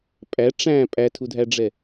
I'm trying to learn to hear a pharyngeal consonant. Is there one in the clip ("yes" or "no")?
no